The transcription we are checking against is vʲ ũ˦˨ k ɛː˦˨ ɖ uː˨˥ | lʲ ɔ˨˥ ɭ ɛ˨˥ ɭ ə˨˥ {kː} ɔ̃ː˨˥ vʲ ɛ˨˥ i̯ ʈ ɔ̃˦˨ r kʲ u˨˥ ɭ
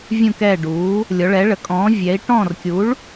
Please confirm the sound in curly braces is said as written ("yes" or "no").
no